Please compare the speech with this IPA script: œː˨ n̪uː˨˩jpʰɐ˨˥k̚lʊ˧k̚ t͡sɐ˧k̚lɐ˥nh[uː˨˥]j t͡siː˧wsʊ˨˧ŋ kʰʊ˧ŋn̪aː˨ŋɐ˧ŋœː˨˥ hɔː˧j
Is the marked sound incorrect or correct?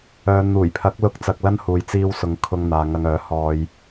incorrect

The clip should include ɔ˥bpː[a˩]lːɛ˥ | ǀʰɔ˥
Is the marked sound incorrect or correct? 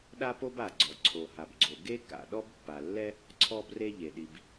correct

